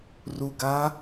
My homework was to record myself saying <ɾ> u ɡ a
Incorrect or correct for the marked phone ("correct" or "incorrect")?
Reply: incorrect